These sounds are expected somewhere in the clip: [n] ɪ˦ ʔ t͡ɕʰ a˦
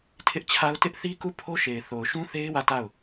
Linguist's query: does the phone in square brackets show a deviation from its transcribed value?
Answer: yes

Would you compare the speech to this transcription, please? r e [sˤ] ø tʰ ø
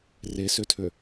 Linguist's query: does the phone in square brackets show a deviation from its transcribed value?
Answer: yes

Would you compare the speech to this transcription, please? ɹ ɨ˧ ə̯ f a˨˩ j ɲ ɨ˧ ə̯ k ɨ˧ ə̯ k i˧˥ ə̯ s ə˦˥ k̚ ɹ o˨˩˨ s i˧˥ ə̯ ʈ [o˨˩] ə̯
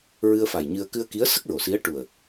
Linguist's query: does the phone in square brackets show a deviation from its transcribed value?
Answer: yes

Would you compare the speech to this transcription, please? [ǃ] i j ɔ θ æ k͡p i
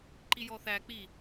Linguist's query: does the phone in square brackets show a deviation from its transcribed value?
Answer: no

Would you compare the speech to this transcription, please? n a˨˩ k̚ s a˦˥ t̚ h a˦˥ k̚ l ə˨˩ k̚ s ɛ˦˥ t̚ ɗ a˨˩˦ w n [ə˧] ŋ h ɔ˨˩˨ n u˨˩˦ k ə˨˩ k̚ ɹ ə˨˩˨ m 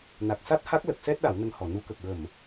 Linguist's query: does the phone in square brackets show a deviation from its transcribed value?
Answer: no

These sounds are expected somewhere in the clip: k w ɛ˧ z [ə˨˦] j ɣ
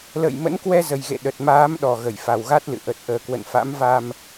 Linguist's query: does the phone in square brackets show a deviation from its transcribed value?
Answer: yes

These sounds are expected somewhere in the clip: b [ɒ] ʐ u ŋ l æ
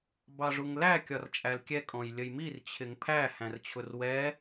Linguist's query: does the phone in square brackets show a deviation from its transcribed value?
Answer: yes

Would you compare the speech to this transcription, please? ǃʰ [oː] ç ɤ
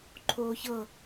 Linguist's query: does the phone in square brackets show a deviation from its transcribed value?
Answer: no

